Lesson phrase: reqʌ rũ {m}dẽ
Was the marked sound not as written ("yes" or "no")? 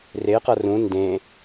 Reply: yes